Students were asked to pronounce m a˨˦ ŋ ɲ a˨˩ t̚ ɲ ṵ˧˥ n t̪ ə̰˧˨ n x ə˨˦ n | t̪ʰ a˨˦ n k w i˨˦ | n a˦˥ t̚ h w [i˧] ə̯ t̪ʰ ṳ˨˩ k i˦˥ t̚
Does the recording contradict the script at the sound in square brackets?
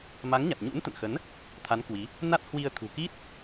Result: no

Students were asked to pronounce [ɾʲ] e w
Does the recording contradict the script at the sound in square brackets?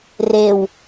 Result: yes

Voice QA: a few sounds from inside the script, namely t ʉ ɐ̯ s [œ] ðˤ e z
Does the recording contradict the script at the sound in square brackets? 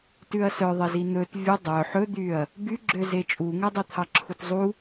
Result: no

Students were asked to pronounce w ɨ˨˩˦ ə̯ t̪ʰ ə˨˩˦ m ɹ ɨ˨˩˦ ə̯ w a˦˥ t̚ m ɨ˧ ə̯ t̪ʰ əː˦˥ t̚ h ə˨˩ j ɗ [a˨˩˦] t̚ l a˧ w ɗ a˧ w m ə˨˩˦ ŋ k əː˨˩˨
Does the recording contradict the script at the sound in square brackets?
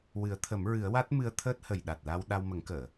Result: yes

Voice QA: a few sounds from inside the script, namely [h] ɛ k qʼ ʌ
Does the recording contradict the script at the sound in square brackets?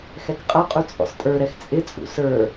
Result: yes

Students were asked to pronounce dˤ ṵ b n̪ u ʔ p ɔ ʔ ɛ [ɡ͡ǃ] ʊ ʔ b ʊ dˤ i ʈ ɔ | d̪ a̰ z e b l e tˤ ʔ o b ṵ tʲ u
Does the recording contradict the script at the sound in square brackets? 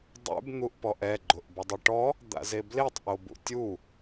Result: no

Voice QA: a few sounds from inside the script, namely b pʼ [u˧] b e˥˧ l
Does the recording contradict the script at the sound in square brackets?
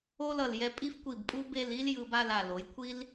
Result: yes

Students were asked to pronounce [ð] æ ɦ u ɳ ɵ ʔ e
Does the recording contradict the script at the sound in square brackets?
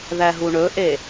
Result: no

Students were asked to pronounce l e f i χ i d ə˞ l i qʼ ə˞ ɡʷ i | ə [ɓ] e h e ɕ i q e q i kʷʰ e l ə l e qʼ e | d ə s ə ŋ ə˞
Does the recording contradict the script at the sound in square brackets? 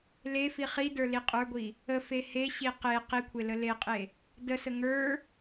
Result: yes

